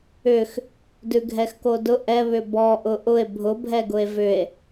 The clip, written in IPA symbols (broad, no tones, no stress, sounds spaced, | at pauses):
ʏ x | d ʉ ɡʱ ɛ x k o d ʊ ʔ ɛ β ʏ b ɔ ʔ ʊ ʔ ʊ e̯ bʱ ʊ bʱ ɛ ɡ ʊ e̯ v ʏ e̯